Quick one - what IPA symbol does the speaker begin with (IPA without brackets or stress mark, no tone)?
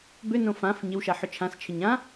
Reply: b